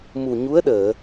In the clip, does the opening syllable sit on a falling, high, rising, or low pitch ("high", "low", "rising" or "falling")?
low